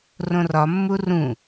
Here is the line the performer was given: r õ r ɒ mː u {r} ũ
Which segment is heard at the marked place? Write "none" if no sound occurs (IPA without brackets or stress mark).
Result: r